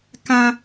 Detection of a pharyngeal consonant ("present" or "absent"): absent